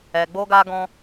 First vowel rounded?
no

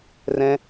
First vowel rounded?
no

